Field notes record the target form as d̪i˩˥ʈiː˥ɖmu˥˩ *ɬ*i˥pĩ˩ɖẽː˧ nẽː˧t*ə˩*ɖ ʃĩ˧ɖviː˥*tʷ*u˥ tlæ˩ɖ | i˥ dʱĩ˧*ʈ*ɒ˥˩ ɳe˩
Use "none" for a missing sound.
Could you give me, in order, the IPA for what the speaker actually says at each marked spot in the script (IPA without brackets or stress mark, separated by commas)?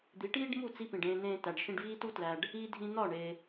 t͡s, æ˩, t, n̪